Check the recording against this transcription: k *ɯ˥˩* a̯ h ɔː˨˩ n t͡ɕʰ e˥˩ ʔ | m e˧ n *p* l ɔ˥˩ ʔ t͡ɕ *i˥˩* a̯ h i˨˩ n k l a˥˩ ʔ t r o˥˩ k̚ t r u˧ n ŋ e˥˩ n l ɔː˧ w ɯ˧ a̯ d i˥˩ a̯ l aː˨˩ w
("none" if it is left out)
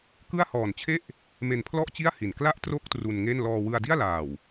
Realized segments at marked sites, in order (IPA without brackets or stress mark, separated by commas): ɯ˥˩, pʰ, i˥˩